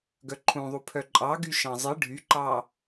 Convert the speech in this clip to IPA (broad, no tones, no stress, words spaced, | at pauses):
ɡœǃʰũðˤu pʰœǃʼɑɡy ʃɑ̃zˤɨ ɖʱyǃɑ